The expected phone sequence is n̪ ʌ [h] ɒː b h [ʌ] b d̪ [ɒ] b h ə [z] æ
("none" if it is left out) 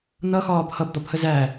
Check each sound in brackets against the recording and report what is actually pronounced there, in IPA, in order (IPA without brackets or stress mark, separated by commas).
x, ʌ, ɒ, z